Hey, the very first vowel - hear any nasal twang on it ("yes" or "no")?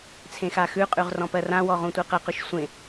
yes